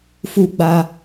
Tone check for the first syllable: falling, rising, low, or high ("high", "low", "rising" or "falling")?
high